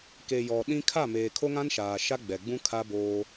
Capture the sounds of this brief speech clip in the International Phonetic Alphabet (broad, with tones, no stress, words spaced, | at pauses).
ke˨jɔ˨ ɗĩ˦ kʰa˦˨meː˨ kʰo˦ŋã˦nʃaː˨ ʃa˦ɡ͡bɛ˨ɡ͡bũ˦ kʰa˦boː˦